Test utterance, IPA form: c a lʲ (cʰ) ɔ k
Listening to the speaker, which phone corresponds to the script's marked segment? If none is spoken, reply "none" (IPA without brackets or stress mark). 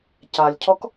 cʰ